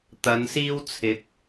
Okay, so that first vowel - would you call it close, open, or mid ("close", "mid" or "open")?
open